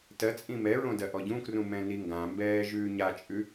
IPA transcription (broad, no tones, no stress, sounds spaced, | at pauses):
t ɜ t͡sʼ ĩ m ɛ ɹ õ d ɜ ʔ ɔ ɟ ũ k r ũ m ɛ̃ n i ŋ ɡ ã m b ɛː ʒ ʉː ɲ a t͡ʃʼ ʉ